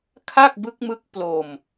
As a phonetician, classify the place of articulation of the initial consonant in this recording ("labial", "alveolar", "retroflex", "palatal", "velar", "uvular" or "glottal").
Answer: velar